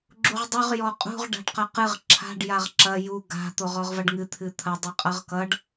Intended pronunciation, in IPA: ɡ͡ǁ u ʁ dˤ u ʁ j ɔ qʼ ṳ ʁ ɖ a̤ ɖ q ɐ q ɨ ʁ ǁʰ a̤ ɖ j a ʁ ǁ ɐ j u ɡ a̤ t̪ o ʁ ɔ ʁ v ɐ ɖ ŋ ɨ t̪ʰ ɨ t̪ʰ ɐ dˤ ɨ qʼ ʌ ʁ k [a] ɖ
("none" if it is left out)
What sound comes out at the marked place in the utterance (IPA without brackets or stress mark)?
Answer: ʌ